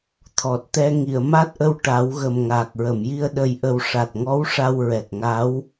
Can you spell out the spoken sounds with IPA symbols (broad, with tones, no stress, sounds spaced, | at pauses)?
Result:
t̪ʰ ɔ˨˩ t̚ t̪ ɛ˧ ŋ i˨˩˨ ə̯ m a˦˥ t̚ ʔ ə˧ w ʈ a˨˩˦ w ɣ ə˨˩ m ŋ aː˨˩ k̚ ɹ ə˨˩˨ m j i˧ ə̯ ɗ ə˨˩ j ʔ ə˨˩ w ʂ a˨˩ t̚ ŋ ɔ˧˥ w ʂ a˧ w ɹ ɛ˨˩ k̚ ŋ a˧˥ w